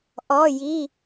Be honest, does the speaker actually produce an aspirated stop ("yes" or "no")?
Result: no